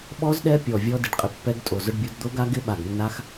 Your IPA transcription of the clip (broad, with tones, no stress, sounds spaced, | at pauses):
ɓ ɔ˦˥ z ɗ ɛ˦˥ pʲ ɔ˧˩ vʲ ɔ˦˥ d ɪ˧˩ ɖ qʼ ɪ˧˩ pː ɛ˦˥ ɡ tʼ o˧˩ z ʊ˦˥ ɖ bʲ o˦˥ d d̪ o˦˥ ɡ a˦˥ ɡ ɪ˦˥ ɓ a˧˩ ɡ nː a˦˥ x